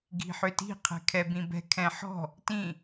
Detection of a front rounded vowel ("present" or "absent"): present